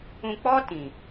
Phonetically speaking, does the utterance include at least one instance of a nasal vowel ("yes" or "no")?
yes